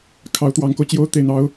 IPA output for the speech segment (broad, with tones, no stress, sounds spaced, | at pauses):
kʰ ɑ˧˥ ʊ̯ t̪ w ɑ˧˥ ŋ k o˧ ʊ̯ t͡ɕ j o˥ ʊ̯ t̪ e˥˩ ɪ̯ n̪ ɑ˥ ʊ̯